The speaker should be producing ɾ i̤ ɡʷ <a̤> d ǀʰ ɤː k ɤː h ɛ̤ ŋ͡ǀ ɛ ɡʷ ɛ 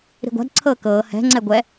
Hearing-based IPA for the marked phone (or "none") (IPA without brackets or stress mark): a̤